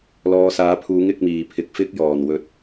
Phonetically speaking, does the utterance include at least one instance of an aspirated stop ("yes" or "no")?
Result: yes